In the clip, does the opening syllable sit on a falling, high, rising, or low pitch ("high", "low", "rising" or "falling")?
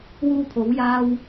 high